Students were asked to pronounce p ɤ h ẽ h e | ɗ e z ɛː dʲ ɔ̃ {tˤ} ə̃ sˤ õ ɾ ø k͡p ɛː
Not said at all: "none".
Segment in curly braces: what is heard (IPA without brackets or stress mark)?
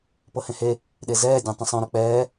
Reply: tˤ